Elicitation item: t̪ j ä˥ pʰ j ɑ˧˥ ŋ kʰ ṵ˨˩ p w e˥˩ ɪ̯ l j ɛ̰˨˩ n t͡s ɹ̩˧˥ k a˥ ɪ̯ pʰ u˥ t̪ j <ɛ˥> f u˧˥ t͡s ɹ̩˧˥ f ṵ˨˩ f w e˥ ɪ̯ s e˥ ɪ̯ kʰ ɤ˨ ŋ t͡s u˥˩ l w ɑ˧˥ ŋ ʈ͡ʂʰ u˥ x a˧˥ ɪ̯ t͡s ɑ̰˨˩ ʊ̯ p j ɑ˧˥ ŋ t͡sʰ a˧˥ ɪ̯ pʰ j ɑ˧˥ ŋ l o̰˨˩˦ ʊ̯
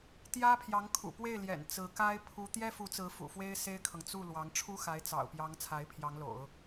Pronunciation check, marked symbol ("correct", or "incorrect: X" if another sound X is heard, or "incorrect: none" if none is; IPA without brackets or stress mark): correct